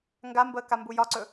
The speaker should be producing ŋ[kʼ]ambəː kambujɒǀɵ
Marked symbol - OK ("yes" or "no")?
no